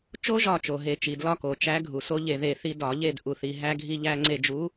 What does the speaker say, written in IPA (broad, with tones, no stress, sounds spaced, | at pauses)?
t͡ʃ o˦ ʒ ɒ˧˩ t͡ʃ o˩ ɦ e˧˩˧ t͡ʃ i˩ d l ɒ˦ k o˩ t͡ʃ æ˨˥ ɡʱ u˩ s o˦ ʎ e˧˩ ð e˧˩ θ i˦ d ɒ˧˩˧ ʎ e˥˨ d ʔ u˩ θ i˩ ɦ æ˦ ɡʱ i˦ ʎ æ˦ ŋ͡ǀ e˧˩ d͡ʒ u˨˥